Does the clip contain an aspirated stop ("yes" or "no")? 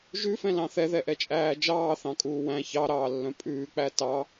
no